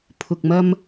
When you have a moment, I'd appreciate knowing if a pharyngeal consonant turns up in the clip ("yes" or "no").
no